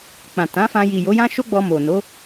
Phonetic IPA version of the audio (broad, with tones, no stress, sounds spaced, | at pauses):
k͡p ã˨ t ã˨˦ f ã˧ j i˨ j o˨˦ j ã˦ ʃ o˦ ɡ͡b ɔ˧ m o˨ n o˨˦